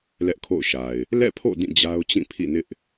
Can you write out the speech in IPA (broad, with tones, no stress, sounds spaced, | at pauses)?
l ɛ˦ ʔ kʰ o̰˦˨ ʊ̯ ʃ a˨ ɪ̯ | l ɛ̰˦˨ pʰ o̰˦˨ d ĩ˦˨ d͡ʑ a˦ ʊ̯ t͡ɕ ĩ˦˨ pʰ ḭ˦˨ n ɪ˦ ʔ